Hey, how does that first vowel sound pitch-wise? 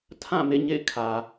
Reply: falling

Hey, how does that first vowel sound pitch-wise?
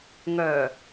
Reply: low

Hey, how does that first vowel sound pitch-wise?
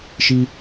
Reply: high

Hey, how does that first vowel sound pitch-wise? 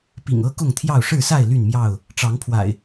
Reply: low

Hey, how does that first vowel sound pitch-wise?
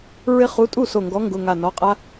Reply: high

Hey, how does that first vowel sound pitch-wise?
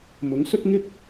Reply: rising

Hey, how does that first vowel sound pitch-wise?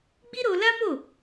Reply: high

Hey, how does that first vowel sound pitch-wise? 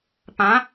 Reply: rising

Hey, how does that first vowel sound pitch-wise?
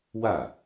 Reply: falling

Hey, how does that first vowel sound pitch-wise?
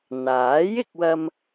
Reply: rising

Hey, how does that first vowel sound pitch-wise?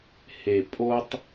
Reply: low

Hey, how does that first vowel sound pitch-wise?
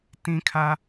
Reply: high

